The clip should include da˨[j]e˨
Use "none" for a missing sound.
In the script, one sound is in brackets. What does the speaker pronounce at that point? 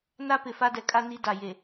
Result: j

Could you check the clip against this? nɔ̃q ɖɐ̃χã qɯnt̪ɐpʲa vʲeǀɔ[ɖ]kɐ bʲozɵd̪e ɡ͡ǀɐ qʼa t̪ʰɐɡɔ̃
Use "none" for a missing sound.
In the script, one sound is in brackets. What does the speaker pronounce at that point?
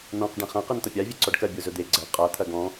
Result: ɖ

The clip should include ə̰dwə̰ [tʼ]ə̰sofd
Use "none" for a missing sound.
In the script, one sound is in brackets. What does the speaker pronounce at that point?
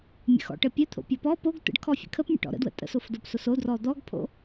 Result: tʼ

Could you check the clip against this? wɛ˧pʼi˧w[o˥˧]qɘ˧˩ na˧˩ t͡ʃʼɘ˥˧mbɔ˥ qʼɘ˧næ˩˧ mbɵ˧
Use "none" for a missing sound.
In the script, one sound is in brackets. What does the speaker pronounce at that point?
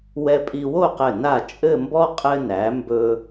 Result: o˥˧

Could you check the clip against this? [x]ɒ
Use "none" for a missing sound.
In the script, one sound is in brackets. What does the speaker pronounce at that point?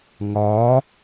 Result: ŋ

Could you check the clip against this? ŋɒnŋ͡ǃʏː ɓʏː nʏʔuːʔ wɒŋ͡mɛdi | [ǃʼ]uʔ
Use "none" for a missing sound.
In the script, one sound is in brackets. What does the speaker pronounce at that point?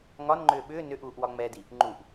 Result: ŋ͡ǃ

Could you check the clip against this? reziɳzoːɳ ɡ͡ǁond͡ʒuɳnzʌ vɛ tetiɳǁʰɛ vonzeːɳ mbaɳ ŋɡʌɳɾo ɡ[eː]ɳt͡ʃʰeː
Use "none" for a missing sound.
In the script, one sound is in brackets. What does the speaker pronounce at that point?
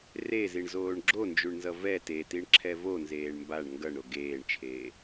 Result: eː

